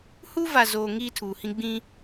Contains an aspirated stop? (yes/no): yes